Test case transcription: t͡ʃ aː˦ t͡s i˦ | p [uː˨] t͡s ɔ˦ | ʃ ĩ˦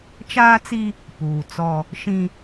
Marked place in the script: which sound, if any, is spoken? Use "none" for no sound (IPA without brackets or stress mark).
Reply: uː˨